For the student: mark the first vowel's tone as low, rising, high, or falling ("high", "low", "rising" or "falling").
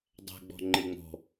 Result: low